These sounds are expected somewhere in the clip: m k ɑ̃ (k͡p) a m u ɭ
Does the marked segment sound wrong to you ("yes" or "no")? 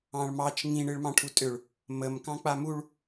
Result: no